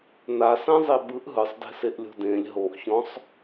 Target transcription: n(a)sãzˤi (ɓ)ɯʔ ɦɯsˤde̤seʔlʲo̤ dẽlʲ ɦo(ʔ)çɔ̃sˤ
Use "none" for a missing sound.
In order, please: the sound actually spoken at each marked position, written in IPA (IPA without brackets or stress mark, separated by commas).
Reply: a, ɓ, ʔ